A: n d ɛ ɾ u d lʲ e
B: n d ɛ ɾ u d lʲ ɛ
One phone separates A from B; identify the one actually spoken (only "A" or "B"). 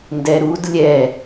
B